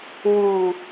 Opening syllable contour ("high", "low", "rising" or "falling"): low